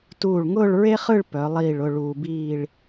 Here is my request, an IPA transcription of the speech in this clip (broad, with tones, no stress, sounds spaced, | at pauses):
t uː˧˩ ɭ ŋ ʊː˥˧ ɭ ɹ e˥ χ ɯ˥˧ ɭ p œ˩˧ lˠ iː˧˩ ɭ ʊ˥˧ ɭ uː˧ b iː˥˧ ɭ